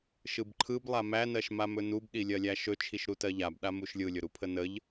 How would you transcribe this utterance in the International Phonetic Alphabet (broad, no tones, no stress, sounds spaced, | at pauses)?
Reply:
ʃ ɯ b ǃʰ ɯ b lˠ a m æ n ɜ ʃ m a m ɵ n u b ɗ i lʲ ɜ lʲ æ ʃ ɵ t͡ʃʰ i ʃ ɾ u t ɜ ʎ a b ɗ a m u ʃ lʲ ɯ lʲ ɵ ɾ u pʰ ə n ə ʎ